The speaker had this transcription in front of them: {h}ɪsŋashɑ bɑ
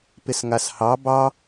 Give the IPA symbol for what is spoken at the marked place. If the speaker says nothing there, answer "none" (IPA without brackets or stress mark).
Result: p